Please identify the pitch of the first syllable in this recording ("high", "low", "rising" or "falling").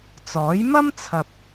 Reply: rising